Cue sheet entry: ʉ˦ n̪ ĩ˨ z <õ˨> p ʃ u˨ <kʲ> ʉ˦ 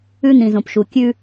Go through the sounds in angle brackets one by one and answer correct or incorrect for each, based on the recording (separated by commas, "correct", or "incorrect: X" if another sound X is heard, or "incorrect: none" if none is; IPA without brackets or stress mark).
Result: correct, correct